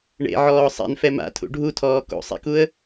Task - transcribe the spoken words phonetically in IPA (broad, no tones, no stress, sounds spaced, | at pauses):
ɳ ḛ ʕ ɔː sˤ ḛ n f ɛ m a̰ tʰ ṵ ɖʱ u tʰ ɔː k o̰ sˤ ḛ k u ə̯